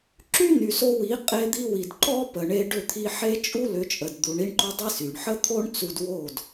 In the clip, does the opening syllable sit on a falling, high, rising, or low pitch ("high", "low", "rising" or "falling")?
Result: high